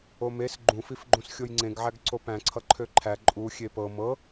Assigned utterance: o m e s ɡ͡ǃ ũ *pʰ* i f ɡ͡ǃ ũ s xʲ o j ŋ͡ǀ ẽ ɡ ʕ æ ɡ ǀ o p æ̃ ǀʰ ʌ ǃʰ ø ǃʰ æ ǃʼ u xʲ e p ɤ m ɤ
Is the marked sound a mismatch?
yes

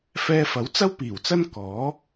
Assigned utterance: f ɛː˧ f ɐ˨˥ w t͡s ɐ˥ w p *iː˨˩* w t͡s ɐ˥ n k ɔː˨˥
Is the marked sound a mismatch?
no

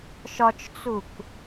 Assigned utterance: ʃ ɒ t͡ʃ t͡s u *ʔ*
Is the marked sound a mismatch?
yes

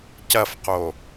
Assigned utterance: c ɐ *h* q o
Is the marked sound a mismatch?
yes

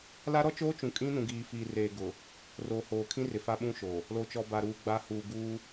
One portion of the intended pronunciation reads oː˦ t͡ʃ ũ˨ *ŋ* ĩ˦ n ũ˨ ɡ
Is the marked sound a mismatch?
yes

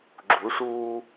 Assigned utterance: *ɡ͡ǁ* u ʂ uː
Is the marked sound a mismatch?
no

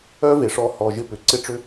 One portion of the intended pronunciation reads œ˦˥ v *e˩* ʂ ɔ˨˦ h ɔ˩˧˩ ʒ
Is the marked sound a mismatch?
no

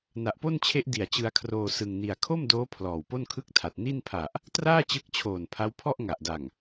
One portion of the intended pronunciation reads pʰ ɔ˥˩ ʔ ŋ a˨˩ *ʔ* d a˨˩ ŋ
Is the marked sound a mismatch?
no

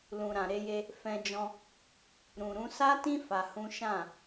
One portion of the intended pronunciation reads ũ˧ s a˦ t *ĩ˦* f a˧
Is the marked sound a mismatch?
no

